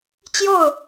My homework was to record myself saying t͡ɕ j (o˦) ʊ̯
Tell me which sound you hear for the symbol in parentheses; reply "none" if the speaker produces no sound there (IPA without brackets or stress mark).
o˥˨